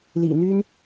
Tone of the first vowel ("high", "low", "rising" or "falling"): low